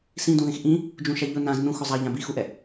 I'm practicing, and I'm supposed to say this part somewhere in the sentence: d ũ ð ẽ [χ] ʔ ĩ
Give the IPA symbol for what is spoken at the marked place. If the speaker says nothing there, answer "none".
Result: x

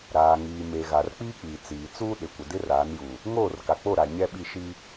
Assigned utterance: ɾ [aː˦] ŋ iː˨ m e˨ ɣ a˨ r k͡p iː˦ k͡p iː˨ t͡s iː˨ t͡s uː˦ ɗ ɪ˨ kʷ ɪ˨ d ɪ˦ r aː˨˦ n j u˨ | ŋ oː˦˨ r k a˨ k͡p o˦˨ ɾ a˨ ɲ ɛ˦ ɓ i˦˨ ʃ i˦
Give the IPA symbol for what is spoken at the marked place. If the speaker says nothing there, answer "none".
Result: aː˨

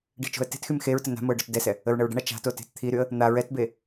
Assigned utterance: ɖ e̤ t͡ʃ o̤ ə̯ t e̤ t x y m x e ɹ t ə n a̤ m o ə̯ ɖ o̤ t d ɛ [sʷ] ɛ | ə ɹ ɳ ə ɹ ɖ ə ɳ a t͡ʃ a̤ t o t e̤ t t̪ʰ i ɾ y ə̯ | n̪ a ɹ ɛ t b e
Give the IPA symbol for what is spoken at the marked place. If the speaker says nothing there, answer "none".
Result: s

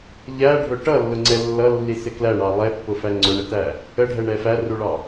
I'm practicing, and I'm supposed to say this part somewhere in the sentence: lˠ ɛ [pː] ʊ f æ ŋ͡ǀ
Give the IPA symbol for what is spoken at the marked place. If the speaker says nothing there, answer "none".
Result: pː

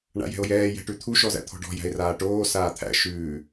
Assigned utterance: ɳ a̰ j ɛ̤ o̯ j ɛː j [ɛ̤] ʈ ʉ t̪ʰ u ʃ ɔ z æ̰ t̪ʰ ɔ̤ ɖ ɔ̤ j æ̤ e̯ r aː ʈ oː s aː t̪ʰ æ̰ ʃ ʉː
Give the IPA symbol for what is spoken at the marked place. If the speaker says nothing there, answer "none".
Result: ɛ̤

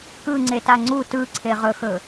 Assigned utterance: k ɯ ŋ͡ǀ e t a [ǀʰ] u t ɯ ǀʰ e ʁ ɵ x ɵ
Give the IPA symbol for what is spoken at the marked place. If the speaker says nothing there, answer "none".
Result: ŋ͡ǀ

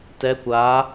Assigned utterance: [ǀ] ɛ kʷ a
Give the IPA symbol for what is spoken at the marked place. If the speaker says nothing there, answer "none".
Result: t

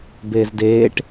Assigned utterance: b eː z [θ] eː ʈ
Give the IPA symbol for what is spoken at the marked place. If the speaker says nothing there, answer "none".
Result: d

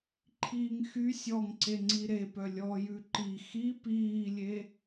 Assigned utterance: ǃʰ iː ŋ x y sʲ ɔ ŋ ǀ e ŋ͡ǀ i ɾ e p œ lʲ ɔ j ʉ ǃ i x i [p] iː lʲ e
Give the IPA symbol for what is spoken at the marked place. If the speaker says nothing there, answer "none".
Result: p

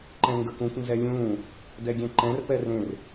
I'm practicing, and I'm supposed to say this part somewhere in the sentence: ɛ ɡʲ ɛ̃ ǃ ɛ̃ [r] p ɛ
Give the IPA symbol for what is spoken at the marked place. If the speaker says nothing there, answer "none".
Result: r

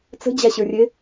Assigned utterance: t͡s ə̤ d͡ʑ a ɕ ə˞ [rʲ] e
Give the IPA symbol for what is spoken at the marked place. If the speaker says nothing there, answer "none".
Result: rʲ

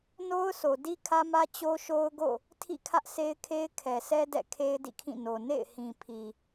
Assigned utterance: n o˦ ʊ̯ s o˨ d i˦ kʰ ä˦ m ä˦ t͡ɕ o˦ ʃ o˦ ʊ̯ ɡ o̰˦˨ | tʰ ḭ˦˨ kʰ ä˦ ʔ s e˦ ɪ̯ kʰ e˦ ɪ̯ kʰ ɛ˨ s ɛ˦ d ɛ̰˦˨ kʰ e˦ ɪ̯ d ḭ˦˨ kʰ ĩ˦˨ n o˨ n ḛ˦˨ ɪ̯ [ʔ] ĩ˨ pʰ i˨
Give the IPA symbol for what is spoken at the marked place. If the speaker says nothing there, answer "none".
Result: h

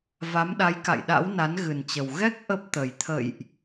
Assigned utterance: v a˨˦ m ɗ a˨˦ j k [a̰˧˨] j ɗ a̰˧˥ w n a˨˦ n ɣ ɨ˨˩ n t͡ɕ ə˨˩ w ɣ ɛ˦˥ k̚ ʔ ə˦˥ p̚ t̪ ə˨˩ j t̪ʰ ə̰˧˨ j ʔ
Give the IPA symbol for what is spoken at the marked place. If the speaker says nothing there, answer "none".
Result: a̰˧˨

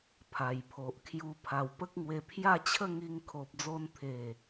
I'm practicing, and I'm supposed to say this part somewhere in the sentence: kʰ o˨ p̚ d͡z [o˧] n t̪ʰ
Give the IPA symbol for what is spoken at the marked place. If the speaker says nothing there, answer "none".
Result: o˧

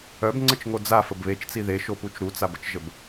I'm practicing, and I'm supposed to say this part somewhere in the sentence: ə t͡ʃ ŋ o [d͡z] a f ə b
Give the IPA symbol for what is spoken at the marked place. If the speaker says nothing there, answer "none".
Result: d͡z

